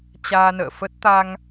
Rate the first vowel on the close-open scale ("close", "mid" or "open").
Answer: open